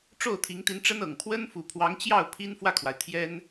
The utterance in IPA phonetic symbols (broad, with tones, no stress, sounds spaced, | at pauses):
ʈ͡ʂ o˥˩ ʊ̯ t̪ʰ i˧˥ ŋ t̪ i˧˥ n ʈ͡ʂ ə˥ n ɤ˨˩ ŋ pʰ w ə˥ n f u˨˩ pʰ w ɑ˧˥ ŋ t͡ɕ j ɑ˥˩ ʊ̯ pʰ i˥ n f w ä˥˩ kʰ w a˩ ɪ̯ t̪ʰ j ɛ˥ n